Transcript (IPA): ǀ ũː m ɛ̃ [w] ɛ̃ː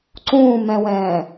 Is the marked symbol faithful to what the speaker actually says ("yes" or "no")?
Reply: yes